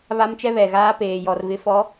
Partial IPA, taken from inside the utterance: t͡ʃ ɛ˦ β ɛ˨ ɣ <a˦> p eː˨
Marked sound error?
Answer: yes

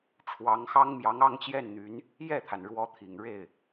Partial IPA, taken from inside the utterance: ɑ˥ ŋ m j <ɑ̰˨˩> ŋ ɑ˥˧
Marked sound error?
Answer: yes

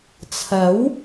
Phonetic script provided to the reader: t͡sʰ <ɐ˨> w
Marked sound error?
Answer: yes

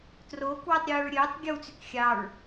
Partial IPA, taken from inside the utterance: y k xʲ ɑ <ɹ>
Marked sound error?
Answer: no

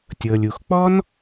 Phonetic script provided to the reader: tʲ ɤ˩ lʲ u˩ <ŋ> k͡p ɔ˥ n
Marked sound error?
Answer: yes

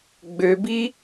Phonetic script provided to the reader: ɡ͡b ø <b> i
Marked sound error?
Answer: no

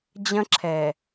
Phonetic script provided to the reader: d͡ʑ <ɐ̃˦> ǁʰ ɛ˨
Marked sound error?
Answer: no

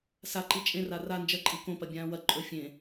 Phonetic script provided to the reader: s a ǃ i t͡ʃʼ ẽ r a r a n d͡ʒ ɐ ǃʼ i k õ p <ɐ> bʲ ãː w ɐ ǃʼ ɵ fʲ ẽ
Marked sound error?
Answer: no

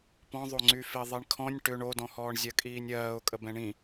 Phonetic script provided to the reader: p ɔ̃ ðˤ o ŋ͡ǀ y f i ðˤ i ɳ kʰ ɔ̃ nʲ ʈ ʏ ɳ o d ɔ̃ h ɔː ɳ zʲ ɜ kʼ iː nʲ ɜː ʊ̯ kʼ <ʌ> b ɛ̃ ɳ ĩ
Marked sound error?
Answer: yes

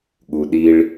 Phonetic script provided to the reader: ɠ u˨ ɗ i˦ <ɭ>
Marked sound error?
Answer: no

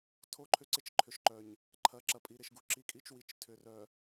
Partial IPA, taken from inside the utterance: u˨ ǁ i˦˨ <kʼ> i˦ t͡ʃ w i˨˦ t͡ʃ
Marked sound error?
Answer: no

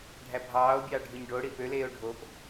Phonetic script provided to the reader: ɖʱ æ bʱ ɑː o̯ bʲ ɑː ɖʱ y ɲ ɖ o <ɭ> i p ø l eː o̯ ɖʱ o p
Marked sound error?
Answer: yes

